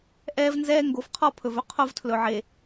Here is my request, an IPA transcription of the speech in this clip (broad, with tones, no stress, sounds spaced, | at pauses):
ʔ ɛː˦ v n z ɛː˦ ŋ ɡ o˨ f qʰ ɔ˦˨ pʰ ɵ˨ v ɵ˦ qʰ o˦ v tʰ l ɵ˨ ʕ e˨